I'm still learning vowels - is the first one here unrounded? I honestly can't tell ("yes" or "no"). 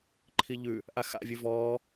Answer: yes